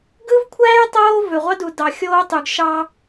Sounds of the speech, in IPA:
ɡɯ˦vkʷʰæː˦j tˤoː˦vø˨ʁʷɑ˦ du˨dɑ˨ xʲoː˦tˤy˨ɡ ʃɑ˦

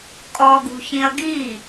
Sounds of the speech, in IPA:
kʼɔɡṳçĩɐ̯ ɡiː

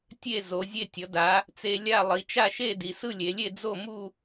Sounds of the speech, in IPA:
tʲe˥˧zo˩˧ zʲe˧tʲʌ˩˧da˩˧ | t͡se˧ lʲa˥˧ lˠi˩˧ t͡ʃa˥˧ʃe˥˧ di˩˧sɯ˥˧lʲe˩˧lʲe˥˧ d͡zo˥˧mu˥˧

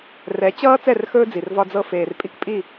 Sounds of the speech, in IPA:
rɛ˨˦t͡ɕʌː˦ t͡sɛ˦˨rxɵː˦d͡zi˨r vɒ˦d͡zɤ˦ feː˨r pʼi˦kpʼi˦˨

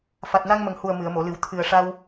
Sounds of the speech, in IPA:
fa˨˩t̚na˧ŋmə˨˩ŋhu˨˩ə̯ mɨ˨˩˨ə̯mo˨˩˨ lɨ˨˩˦w t̪ʰɨ˨˩ə̯ ʂa˧w

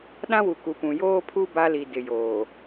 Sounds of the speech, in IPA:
ɗã˦wu˨ku˨pũ˨ joː˦pʰu˦ ba˦li˨ dɪ˨joː˨

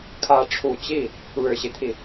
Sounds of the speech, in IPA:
kʰä˧˥ʈ͡ʂʰu˨˩ t͡ɕi˥˩ | ɻɻ̩˨˩ɕi˦t̪ʰi˩

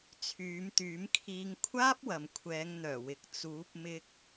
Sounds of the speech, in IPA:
t͡sʰyː˨˧mt̪yː˨˥mkʰiː˧ŋ kʷʰaː˥p̚wɐ˨m kʷʰɛː˨˧ŋn̪œː˨˩wɪ˨k̚ t͡suː˨˥p̚mɪ˧k̚

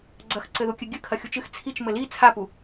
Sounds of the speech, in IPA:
ɡ͡ǀɐxǀɘ ðukʲɨɡʲɨ kʰɐxʲut͡ʃɨx t͡sʰit͡ʃ mɘli t͡sʰapu

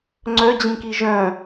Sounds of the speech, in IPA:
ŋ͡ǀœd͡ʑĩki ʒœ̃

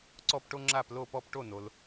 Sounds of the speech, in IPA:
ǀɔ˥˧pʈo˥ ŋ͡ǁa˥˧plo˥˧pɔ˥˧p ʈo˥˧no˧l

